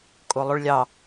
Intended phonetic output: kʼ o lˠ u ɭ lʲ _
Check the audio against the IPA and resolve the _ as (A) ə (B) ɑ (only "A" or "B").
B